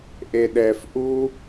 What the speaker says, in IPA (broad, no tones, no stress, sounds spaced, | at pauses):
ʔ e ɗ ɛ f ʔ u